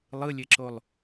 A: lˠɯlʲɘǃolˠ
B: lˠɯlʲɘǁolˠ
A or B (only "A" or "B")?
B